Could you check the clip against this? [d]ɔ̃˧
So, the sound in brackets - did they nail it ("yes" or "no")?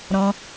no